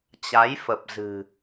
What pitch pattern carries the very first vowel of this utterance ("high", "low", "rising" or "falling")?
rising